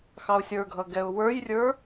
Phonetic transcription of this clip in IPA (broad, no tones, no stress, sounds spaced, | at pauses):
x ɑ ʊ̯ sʲ ə˞ ɡʱ ʌ ɡ ɛ ʊ̯ w ə˞ j rʲ ə˞